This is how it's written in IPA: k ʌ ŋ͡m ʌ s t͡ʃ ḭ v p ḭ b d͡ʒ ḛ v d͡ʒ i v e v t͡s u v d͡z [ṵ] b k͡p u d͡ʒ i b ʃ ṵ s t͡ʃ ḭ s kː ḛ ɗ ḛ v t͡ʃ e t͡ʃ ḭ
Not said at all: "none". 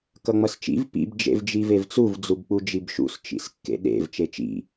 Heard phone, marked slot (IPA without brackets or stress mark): u